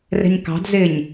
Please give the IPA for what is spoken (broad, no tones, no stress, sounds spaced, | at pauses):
r ɛ̤ ɲ k ɑ̤ d z ɪː ɲ